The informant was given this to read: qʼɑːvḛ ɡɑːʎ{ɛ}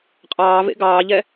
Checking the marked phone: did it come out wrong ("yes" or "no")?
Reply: no